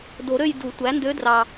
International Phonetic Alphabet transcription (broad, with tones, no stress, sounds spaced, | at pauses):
d o˨˩˦ ɾ ø˥˧ j d u˨˩˦ tʷ æ˩˥ n d ø˧˥ d r ɑ˨˩